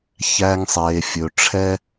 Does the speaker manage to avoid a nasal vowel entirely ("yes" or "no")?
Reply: yes